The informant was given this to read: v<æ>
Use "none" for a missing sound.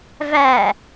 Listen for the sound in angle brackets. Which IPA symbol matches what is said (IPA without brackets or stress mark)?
æ